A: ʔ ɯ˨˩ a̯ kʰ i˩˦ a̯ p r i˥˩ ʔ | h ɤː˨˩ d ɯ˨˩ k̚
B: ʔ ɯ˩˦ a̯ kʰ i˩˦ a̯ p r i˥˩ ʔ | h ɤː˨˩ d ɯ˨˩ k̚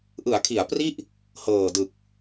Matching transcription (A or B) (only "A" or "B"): B